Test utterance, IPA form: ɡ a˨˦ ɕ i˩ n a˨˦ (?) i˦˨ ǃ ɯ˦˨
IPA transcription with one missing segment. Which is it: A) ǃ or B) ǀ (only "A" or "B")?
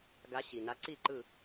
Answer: B